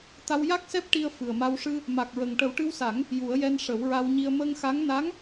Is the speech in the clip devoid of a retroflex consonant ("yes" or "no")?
no